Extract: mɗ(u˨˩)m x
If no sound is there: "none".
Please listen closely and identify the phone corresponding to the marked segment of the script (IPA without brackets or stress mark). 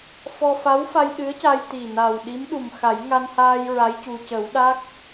u˨˩